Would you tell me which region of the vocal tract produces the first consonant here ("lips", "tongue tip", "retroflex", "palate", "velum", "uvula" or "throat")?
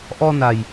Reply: throat